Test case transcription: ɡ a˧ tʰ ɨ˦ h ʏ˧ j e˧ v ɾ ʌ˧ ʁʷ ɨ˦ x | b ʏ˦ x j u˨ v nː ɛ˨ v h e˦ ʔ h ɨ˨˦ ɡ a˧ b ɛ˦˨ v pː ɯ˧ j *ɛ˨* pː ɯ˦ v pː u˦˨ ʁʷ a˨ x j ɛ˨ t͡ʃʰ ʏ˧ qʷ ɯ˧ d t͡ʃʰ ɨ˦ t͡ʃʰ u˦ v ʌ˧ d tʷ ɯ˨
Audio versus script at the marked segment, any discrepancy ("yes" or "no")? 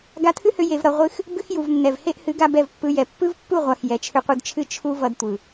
no